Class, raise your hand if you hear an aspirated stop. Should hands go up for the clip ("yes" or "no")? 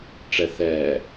no